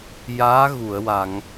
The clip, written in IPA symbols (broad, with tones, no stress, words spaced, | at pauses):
jaː˧˥ɣu˨˩˨ə̯wa˨˩˨ŋ